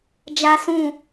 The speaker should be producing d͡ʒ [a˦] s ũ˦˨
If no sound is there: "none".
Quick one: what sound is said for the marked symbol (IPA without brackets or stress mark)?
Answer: a˦